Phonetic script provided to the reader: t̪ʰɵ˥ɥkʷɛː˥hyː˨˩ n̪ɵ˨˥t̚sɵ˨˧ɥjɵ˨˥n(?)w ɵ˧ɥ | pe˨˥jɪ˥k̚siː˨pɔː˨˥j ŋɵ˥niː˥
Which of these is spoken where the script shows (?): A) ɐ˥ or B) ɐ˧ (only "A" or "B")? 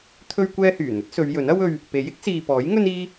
A